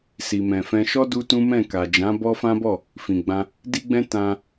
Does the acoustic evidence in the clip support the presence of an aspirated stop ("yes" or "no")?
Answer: no